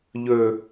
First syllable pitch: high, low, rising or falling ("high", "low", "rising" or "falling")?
low